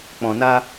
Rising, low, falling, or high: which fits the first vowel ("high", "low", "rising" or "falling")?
low